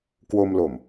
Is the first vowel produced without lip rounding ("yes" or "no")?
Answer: no